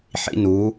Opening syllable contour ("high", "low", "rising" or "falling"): high